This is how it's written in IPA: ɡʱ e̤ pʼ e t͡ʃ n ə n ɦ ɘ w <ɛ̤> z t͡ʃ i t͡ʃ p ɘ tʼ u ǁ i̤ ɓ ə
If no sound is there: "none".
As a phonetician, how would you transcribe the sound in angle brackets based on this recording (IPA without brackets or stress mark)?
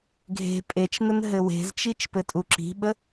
e̤